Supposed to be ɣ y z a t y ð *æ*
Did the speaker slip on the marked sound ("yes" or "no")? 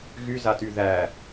no